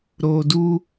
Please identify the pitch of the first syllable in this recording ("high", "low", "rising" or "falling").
low